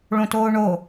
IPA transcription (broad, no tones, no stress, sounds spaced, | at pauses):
ɭ õ t oː ɳ o